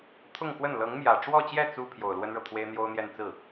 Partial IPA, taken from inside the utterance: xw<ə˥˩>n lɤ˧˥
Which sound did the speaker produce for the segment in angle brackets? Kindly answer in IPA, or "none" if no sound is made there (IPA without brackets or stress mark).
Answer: ə˥˩